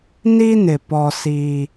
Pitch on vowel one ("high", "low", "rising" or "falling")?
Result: high